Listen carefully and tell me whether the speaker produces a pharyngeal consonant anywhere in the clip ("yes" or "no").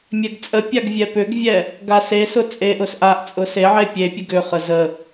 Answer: yes